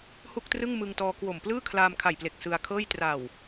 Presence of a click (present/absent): absent